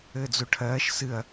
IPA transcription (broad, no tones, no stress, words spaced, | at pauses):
ɘːd͡zuʈʰɜːʃ sɨɐ̯